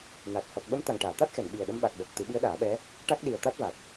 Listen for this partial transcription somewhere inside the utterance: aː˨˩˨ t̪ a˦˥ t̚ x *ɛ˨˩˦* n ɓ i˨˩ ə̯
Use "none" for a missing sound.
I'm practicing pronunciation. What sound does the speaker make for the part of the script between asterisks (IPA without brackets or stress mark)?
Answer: ɛ˨˩˨